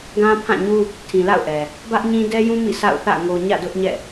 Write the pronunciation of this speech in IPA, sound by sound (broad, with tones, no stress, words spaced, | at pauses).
ɡã˦ pʰã˦˨ɲu˦ | tʰĩ˨la̰˦˨ʊ̯ʔɛ˨ | bä˦ʔɲĩ˦ dɛ˦jũ˦ mḭ˦˨sʰa̰˦˨ʊ̯θä̰˦˨ ŋo˨ ɲä̰˦˨dʊ˦ʔɲɛ̰˦˨